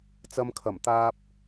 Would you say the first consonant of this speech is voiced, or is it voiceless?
voiceless